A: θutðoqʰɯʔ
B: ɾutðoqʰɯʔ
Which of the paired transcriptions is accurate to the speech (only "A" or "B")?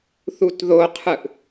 A